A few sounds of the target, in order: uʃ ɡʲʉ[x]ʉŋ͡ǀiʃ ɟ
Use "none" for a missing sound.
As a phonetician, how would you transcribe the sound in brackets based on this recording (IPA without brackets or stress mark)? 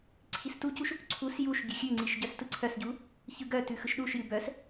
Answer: xʲ